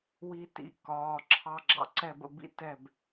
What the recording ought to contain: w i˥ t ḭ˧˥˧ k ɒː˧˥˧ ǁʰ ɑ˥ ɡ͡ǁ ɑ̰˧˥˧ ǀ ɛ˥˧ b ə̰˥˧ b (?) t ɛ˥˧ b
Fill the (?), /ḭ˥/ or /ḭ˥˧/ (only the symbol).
ḭ˥